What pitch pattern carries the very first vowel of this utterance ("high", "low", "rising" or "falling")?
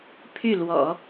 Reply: falling